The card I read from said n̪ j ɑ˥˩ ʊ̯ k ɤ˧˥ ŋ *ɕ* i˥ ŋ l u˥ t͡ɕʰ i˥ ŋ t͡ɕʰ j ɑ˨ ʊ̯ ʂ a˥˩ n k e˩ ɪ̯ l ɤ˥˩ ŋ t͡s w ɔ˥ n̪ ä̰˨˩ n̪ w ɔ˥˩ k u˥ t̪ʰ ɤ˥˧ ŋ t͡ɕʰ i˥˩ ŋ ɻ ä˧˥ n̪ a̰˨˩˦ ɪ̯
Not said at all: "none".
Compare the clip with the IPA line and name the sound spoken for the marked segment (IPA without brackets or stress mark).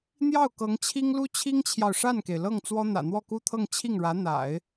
t͡ɕʰ